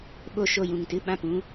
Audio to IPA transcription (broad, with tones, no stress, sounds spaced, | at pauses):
ɓ o˧ ʃ o˧ j ũ˨ ŋ t ɨ˧ ɓ ã˦˨ p ũ˦